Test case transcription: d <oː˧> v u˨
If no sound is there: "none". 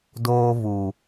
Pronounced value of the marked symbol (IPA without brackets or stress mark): oː˧